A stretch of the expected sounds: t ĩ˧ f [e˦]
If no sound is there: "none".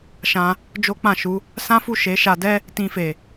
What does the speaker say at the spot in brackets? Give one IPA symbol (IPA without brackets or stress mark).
e˨